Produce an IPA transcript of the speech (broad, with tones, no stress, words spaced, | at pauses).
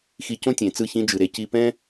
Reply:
xi˧cõ˦tʲẽ˨t͡sɯ˦˨ çĩ˧d͡ʒɯ˨ɾe˨ ci˧pɛ̃˦